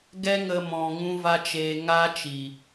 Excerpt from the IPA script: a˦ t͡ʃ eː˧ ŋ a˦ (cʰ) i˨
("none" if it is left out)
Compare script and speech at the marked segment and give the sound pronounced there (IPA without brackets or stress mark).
t͡ʃ